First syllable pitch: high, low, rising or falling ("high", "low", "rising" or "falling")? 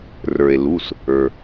low